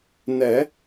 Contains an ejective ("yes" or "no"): no